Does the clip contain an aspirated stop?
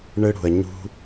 no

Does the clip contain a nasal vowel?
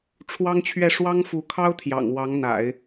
no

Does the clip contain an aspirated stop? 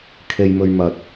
yes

